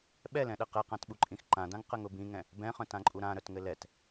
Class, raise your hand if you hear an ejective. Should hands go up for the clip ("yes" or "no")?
yes